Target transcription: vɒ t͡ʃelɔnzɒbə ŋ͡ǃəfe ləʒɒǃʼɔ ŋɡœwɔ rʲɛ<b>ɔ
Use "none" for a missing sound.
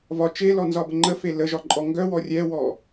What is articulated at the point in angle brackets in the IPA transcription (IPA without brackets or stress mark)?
w